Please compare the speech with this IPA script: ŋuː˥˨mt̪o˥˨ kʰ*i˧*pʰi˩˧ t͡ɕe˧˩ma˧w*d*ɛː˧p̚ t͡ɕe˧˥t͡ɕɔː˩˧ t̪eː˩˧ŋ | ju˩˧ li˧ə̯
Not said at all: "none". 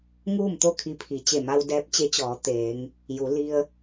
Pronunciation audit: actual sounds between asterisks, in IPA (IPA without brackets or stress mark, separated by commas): i˧, d